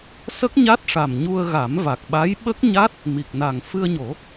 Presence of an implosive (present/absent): present